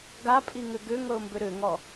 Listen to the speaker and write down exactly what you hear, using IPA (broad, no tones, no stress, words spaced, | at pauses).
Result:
ɡapʼiŋʏ ɡʏŋɤʊ̯mbʏ ɾʏŋɔ